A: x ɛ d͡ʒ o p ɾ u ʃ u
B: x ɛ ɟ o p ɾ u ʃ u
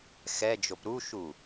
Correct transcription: A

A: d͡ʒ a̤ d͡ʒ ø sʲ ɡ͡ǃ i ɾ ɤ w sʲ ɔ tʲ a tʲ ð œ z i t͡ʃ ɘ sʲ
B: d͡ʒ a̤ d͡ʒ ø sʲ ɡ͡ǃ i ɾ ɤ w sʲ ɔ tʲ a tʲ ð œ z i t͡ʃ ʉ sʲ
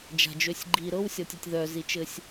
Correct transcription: A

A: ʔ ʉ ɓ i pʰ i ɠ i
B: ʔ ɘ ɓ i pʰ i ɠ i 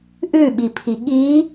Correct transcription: A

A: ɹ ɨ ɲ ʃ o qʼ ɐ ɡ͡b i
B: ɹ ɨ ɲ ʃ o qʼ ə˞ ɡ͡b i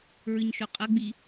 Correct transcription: A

